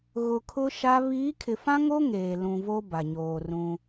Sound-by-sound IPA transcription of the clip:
ɣ ʊ˨ kʰ ʊ˦ ʃ a˦ β iː˨˦ kʰ ɪ˨ f ã˦ ŋ o˦ ŋ eː˨ l ũ˨ v o˦ b a˨ ɲ oː˨ r ũ˦

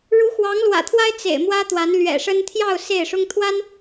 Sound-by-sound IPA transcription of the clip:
ɻ u˧˥ x w ɑ˧˥ ŋ l w ä̰˨˩ t̪ʰ w a˥ ɪ̯ t͡s ḛ˨˩ ɪ̯ m w ä˥ t̪ w a˧˥ n l ɥ ɛ̰˨˩ ʂ ə˥ n t̪ʰ j ɑ˥˧ ʊ̯ s e˥˩ ɪ̯ ʂ ʊ˥ ŋ t̪ʰ w a˥ n

